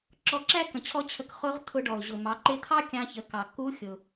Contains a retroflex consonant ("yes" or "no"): yes